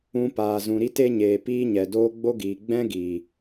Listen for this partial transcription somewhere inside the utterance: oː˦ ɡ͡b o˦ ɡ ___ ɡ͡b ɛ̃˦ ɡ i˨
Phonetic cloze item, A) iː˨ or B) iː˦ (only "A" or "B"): A